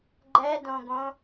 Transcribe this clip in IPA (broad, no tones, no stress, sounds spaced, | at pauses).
ɡ͡ǃ ɛ d õ ɡ õ